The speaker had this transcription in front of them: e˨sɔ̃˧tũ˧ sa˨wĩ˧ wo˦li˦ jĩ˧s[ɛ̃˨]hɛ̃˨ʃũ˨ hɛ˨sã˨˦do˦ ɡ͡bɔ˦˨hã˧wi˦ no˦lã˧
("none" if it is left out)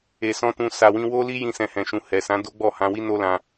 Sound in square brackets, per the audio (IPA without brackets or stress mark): ɛ̃˨